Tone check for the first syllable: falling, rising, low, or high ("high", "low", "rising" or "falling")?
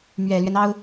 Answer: low